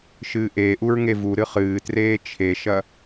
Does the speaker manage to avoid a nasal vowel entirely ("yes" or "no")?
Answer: yes